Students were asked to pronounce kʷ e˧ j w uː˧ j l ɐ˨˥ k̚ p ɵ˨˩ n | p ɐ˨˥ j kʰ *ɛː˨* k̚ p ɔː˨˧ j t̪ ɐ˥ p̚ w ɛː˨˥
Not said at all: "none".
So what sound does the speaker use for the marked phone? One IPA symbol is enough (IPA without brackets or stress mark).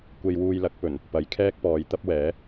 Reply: ɛː˥